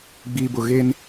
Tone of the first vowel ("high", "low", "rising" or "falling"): low